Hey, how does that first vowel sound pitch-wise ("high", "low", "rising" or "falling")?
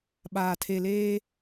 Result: low